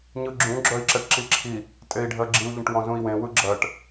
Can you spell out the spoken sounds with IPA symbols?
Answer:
ɲ ɯ ɡ͡ǁ ũ ɡ͡ǁ œ i̯ ǁ ɛ ʈ ǁ i ǁʰ i | tʼ e i̯ ɖʱ ɜ ɡ͡ǁ i u̯ ʎ ə̃ ʈ w ɔ̃ z ũ i̯ w ẽ w ɯ ɡ͡ǁ ɜ ʈ

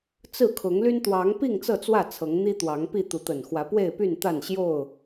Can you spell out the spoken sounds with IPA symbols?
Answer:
t͡s ɹ̩˥˨ kʰ ʊ˨˦ ŋ l y˦ n t̪ w ɑ˨˦ ŋ p i˥˨ ŋ t͡s ɤ˥˨ t͡s w ä˥˨ t͡sʰ ɤ˨˦ ŋ n̪ i˦ t̪ w ɑ˨˦ ŋ p i˥˨ t̪ u˨˦ t̪ ə˨˩ n x w ä˨˦ p w e˥˨ ɪ̯ p y˥˨ n t̪ a˥˨ n ɕ j o˥˨ ʊ̯

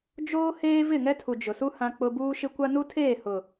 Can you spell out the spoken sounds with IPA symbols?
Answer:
d͡ʒ oː˦ h eː˦ v ɪ˦˨ ŋ ɛ˦ tʰ u˨ d͡ʒ ʊ˨ s u˦ h ã˦ k͡p ʊ˦ b uː˦ ʃ ɪ˦ kʷ a˦ n u˦ tʰ eː˦˨ h ʊ˨

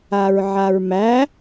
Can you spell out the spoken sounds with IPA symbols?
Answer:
a ɹ ʕ a ɹ m æ

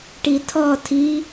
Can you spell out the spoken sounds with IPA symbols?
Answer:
ʈ i tʰ ɔ tʰ i

